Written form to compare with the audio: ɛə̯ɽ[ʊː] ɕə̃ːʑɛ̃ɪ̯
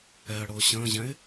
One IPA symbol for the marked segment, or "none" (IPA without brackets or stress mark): ʊː